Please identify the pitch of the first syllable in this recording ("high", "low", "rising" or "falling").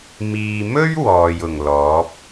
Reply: low